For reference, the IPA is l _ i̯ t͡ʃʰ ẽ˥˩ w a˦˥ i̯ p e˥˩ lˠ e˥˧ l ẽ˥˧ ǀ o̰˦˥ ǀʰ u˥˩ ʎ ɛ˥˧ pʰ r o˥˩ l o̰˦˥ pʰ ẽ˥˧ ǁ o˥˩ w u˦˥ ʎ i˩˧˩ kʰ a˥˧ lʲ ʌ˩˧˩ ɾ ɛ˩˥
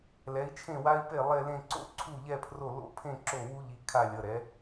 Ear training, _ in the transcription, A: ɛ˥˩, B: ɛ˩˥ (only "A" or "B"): B